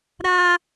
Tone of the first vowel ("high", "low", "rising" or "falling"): high